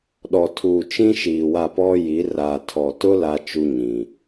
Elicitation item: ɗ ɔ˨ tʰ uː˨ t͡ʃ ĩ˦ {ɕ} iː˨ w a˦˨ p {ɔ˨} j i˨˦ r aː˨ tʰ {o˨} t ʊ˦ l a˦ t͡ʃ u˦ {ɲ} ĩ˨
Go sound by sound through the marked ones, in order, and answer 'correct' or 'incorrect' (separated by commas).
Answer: incorrect, incorrect, incorrect, correct